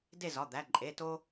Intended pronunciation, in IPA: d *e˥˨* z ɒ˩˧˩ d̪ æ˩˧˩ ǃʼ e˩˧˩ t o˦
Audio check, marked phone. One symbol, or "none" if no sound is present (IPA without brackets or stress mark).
e˥˨